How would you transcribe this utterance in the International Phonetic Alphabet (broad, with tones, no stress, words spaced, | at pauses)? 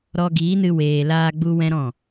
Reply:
ɾɔ˧ ɡiː˨˦nɨ˧ weː˨laː˧ ɡ͡bu˦wɛ̃˦ɾɔ̃˦˨